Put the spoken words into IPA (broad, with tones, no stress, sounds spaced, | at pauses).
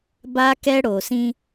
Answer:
b a˦ k ɛ˦ ɽ o˨ s ĩ˦